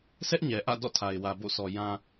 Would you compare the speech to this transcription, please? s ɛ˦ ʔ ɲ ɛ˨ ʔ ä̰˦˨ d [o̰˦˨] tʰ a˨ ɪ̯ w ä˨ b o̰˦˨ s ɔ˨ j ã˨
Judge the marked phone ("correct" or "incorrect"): incorrect